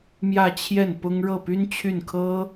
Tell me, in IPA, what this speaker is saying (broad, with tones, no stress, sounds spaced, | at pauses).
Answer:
m j ä˥˧ t͡ɕʰ j ɛ˥˩ n p ʊ˥ ŋ ɻ ɤ˥˩ p y˥ n t͡ɕʰ y˥˩ n kʰ ɤ˥